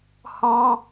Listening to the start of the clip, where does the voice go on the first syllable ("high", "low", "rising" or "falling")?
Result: high